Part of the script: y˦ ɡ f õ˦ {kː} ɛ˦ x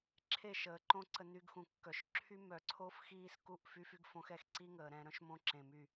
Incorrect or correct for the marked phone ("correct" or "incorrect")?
incorrect